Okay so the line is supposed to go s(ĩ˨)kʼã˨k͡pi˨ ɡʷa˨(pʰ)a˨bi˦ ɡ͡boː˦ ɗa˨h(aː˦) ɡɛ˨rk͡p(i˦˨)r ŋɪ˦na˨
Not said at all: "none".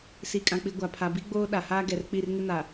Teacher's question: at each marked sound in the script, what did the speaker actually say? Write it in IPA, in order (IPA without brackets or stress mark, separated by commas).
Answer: i˨, pʰ, aː˦, i˦˨